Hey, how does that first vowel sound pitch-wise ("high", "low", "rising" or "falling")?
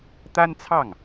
high